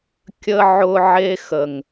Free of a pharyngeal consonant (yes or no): no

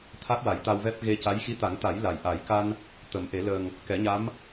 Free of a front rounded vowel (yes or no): yes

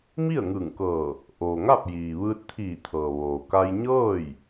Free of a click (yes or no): yes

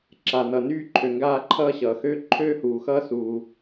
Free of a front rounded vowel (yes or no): no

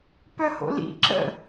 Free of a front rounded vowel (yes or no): no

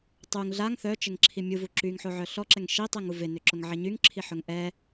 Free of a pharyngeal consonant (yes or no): no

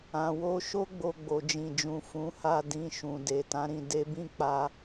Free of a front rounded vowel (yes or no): yes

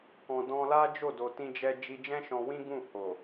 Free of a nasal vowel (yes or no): no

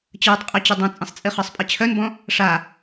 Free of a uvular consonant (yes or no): no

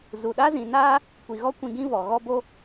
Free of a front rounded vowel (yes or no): yes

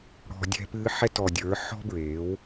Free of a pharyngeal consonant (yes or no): no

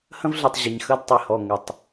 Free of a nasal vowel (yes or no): no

